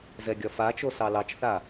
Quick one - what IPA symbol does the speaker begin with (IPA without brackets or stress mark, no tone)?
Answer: z